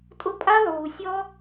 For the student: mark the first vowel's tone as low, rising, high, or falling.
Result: high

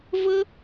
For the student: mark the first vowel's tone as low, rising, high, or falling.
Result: high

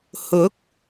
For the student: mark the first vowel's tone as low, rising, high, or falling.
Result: rising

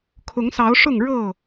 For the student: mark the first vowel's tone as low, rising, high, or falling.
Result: rising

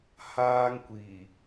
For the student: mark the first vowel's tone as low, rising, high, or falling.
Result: high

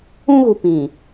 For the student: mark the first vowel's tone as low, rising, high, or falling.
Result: high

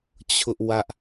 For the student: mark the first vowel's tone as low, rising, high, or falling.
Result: high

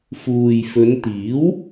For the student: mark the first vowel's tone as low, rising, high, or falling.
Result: low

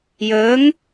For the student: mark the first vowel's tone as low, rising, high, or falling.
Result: rising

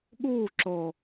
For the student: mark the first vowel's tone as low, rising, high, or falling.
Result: falling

